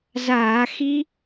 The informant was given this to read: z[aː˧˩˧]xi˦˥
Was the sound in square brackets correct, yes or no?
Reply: yes